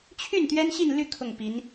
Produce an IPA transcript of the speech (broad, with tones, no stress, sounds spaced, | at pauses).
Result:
t͡ɕʰ y˥˩ n t̪ ɥ ɛ˥ n ɕ i˥˧ n l y˥˧ kʰ ʊ˥˩ ŋ p i˧˥ n